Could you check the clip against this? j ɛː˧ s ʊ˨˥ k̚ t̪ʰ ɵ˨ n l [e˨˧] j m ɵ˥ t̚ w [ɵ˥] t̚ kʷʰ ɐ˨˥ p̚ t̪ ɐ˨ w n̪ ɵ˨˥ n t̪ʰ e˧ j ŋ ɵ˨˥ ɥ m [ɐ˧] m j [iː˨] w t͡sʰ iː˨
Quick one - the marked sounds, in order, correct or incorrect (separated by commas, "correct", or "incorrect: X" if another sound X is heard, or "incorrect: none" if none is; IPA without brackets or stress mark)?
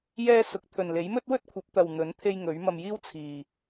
incorrect: e˨˥, correct, correct, incorrect: iː˥